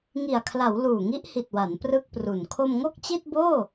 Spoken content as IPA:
ŋ i˨˩ a̯ kʰ l a˩˦ w l uː˨˩ ŋ i˦˥ ʔ h i˨˩ t̚ w a˩˦ n p r ɯ˥˩ k̚ p r u˨˩ n kʰ o˧ m ŋ o˥˩ k̚ t͡ɕ i˥˩ t̚ b oː˥˩

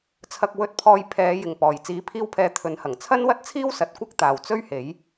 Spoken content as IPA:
t͡sʰ ɐ˧ k̚ w ɵ˧ t̚ pʰ ɔː˧ j pʰ ɛː˨˧ j ɪ˨ ŋ p ɔː˨ j t͡s iː˨˥ pʰ iː˧ w pʰ ɛː˨˧ t̪ʰ ɵ˨˥ n h ɐ˨˩ ŋ t͡sʰ ɐ˥ n w ɐ˥ t̚ t͡sʰ iː˥ w s ɐ˨ t̚ kʷ ɐ˥ k̚ t̪ aː˨ w t͡s ɵ˥ ɥ h e˨˥ j

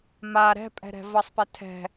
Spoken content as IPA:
m a ɾ ɛ̤ pʼ ɛ̤ ɾ ɛ̤ v ʌ sˤ p ɛ tʰ ɛ̤

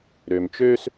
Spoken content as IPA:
ɾ ø˩ m t͡ʃ øː˦ s

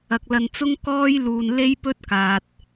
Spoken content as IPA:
ɐ˨ k̚ l ɐ˧ n t͡s ʊ˥ ŋ k ɔː˥ j l uː˧ n l e˥ j p ɵ˥ t̚ k aː˨ t̚

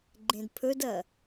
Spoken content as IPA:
ɡ͡ǃ ẽ d pʰ ɵ d ɐ

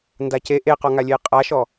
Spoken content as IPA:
n d a c e ʔ e q ɔ ŋ a lʲ e j qʼ a ʃ ɔ

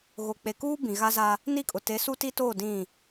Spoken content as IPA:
ɣ o˨ k͡p e˨ k uː˦ b ĩ˨ ɣ a˦ z a˦ | n i˦˨ kʼ ʊ˨ t e˨˦ s u˦ t i˦ t oː˦˨ d ĩ˦˨

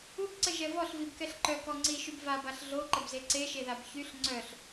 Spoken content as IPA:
u b ǀ ə ʒ ɛ v ɔ ɬ v i b k ɛ ɬ ǃ œ k ɔ ŋ͡ǀ i ʃ y b v a b a ɬ ɮ o ǃ ə b z e ǀ e ʃ e ð a b ç y ɬ ŋ͡ǀ œ ɬ

